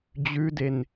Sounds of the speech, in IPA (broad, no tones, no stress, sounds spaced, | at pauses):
d͡ʑ ʉ d e n